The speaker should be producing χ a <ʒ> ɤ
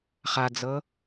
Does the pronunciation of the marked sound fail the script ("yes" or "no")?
yes